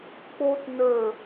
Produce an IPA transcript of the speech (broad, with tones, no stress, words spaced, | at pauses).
k͡po˥tnə˞˦˨